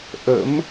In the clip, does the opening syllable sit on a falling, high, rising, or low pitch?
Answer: rising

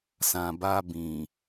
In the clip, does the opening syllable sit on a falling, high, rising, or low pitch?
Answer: low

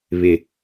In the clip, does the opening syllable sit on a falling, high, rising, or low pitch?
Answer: low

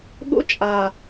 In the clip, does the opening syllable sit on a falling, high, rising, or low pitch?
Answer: high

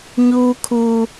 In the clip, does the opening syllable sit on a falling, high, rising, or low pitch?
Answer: high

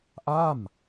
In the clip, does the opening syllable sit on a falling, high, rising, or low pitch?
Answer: falling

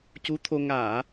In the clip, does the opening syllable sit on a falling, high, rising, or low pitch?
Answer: rising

